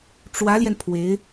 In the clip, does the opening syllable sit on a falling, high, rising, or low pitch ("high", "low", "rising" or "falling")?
rising